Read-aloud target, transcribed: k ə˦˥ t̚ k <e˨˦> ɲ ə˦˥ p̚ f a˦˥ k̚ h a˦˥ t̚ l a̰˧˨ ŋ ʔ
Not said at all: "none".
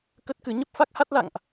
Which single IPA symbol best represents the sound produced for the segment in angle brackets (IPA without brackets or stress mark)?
ɨ˨˦